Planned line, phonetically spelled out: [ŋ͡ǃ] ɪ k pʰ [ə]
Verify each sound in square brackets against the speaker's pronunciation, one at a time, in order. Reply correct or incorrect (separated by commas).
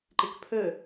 incorrect, correct